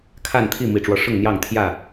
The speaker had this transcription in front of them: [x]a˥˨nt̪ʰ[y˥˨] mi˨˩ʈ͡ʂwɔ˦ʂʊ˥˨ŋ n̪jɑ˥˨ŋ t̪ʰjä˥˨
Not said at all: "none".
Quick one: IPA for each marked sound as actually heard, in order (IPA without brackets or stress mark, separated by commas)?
kʰ, i˥˨